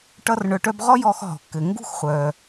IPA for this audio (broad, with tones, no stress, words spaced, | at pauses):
ʈʌ˥rɳœ˧ʈœ˥b ʁɔ˥jɔ˧x ɦɔ̤˩kːɘ˩ ŋɡṳ˥xχʷœ˩